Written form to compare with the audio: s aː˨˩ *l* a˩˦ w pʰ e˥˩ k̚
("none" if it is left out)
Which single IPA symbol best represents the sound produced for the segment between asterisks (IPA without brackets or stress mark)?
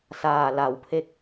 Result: l